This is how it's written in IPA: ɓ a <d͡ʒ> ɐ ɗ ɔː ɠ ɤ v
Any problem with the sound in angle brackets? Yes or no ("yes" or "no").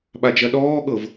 no